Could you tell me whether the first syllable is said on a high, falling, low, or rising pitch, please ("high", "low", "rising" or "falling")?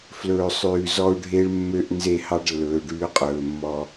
low